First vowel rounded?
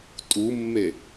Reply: yes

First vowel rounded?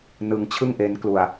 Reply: no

